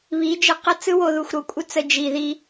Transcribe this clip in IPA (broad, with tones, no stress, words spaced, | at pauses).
βi˨˦d͡ʒə˦qə˦ t͡sɯ˦wo˧ðu˨xʷ ɾo˨kʷʼə˦ t͡sə˧ d͡ʒi˨ ði˧